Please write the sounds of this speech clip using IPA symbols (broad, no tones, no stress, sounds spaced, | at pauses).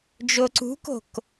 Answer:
d͡ʒ o ǀ ṳ k o̤ k